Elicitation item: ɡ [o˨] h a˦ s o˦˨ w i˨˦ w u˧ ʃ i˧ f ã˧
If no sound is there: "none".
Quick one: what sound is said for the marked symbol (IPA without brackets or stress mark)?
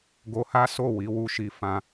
o˧